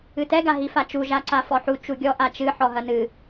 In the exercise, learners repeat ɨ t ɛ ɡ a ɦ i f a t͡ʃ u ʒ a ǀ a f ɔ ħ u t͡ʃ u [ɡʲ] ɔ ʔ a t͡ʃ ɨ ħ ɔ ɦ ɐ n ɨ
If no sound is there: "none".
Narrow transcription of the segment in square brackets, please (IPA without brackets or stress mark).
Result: ɡʲ